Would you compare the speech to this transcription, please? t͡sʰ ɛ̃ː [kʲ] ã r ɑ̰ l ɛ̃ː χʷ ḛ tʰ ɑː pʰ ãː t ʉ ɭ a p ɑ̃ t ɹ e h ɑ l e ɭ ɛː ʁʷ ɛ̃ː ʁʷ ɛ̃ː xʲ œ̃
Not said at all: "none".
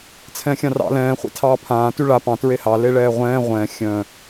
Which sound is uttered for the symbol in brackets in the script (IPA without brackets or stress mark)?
xʲ